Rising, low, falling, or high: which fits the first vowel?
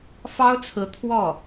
high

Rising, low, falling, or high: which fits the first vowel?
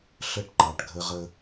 high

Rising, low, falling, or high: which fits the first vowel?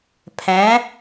rising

